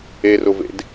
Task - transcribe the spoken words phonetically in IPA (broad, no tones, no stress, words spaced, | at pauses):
erʊvḛd